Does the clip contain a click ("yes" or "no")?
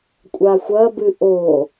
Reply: no